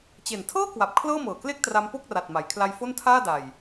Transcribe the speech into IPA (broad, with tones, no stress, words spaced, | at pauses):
t͡ɕe˨˩ntʰɤː˥˩kwa˨˩p̚ kʰlɤː˥˩mɤː˨˩kle˥˩k̚tra˧m po˥˩k̚ra˨˩t̚ma˩˦jkʰla˧j fo˥˩ntʰaː˥˩ da˨˩j